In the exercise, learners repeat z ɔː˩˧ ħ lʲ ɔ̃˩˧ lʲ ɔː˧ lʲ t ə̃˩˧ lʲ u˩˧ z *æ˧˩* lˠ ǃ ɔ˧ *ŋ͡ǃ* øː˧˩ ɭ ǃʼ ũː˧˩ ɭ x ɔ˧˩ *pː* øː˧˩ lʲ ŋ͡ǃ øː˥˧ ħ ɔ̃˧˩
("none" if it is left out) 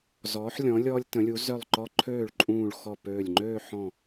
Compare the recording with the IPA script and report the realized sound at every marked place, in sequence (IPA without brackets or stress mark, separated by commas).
œ˧˩, ǃʰ, p